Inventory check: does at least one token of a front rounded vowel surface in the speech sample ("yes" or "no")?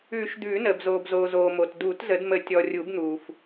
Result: no